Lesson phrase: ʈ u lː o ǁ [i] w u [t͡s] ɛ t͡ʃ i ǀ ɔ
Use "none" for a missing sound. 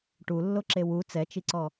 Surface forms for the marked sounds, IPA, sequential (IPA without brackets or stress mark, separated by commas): e, t͡s